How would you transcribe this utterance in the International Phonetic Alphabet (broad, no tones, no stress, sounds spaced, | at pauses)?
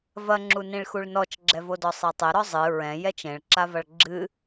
v ɐ ŋ͡ǁ u n ĩ ɭ x u ɭ n ɔ t͡ʃ ɡ͡ǁ ɛ v o d ɔ sˤ e tˤ ɘ ɾ ɔ zˤ ɨ ɹ ɛ̃ j ɛ t͡ʃ ẽ ɭ ǁ a v ɐ ɭ ɡ͡ǁ ɨ